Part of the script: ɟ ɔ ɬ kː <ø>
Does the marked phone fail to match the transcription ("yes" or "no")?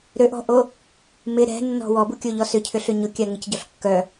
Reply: yes